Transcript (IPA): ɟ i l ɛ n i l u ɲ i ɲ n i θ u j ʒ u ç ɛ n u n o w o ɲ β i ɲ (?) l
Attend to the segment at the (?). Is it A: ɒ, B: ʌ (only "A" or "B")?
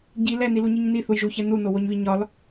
A